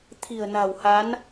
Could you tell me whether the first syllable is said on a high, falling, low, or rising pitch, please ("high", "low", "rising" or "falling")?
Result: low